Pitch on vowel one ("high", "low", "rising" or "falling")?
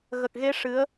low